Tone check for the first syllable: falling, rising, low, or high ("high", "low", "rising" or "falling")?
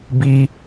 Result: high